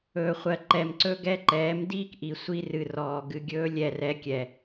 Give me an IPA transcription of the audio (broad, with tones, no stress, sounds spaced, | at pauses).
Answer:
ɵː˨ χʷ ɜ˨ ǃ ɛ˨ m ǀ ɵ˦ ɡ ɛ˦ ǃ ɛː˨˦ m d iː˦ k ʔ i˨ sʷ i˧ r ɨ˨ r ɔː˨ ɡ ɨ˧ ɡʲ ɵː˦ lʲ ɛ˦˨ r ɛ˧ kʲ ɛ˨